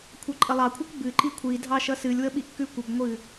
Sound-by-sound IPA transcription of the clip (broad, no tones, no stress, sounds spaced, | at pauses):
kʷʰ ʌ ǃʼ ə lˠ ɑ kʷʰ ʌ kʷ b ɨ ǃ i kʷʰ i dʱ ɑ ʃ ʌ s ɨ lʲ w ə ɓ i ʔ k ʉ kʷ ə b ŋʷ ɨ